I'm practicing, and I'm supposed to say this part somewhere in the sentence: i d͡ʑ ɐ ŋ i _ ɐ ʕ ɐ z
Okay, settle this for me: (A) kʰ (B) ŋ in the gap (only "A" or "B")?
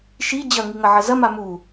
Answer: B